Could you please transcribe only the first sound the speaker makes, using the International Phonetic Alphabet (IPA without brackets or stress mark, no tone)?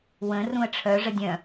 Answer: w